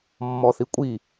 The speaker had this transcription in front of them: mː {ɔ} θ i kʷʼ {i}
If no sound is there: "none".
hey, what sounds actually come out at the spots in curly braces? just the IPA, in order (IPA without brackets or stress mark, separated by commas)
ɔ, i